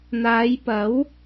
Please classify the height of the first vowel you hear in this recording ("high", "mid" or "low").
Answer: low